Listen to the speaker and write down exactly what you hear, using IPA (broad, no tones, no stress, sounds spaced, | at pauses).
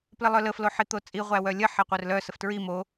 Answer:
p l ə lˠ œ l ə f l o ħ i t̪ o t͡sʼ i ʁʷ æ w œ lʲ ə ħ ɛ qʷ œ r l œ s ə f t ɹ i m o